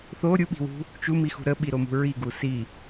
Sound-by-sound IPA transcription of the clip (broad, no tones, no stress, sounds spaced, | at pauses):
θ o ɾʲ u ɓ i̤ w ṳ | t͡ʃ u m i x ṳ ɾ ə ɓ i ɾ o m ṳ ɹ i ɡ u s i